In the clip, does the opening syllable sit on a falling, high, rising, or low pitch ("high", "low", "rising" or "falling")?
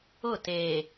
falling